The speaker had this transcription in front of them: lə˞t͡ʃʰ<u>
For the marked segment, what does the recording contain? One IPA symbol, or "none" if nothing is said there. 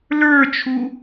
u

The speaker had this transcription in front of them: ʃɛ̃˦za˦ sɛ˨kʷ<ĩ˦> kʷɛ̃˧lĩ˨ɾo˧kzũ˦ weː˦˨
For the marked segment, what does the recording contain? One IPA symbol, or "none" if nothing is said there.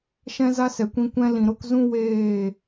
ĩ˧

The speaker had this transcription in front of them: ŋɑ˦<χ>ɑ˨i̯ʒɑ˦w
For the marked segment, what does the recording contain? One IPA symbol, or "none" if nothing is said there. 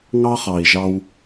χ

